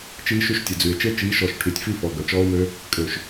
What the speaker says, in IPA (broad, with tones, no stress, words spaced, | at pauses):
t͡ʃiː˦ʃy˦ʃtʲə˨d͡zy˨e̯ t͡ʃe˦t͡ʃiː˨˦ʃɔ˨ʃ ʈʰy˨tʲfi˦˨fɔ˨ɡœ˨ t͡ʃɔː˦o̯mø˦ | kʼø˨ʃ